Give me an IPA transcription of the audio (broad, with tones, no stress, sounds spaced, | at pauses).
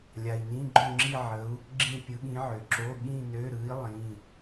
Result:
lʲ a˨ i̯ n ĩ˧˥˧ ɡ͡ǃ õ˥˧ ŋ͡ǁ i˥˧ ʕ ə˧˥ u̯ | ɡ͡ǁ ĩ˥˧ pʲ ɯ˧˥ ɠ ĩ˧˥ ʕ ø˨ ǁ o˧˥˧ ɠ ĩ˥˧ n ø˧˥˧ ɾ ɯ˧˥ i̯ lˠ ĩ˧˥˧